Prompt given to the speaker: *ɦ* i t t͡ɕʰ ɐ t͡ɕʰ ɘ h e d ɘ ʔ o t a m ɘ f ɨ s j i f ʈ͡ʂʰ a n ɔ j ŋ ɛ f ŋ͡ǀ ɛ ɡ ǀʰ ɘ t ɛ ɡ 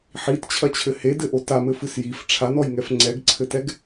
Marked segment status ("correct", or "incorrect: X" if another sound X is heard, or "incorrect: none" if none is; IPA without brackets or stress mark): incorrect: ħ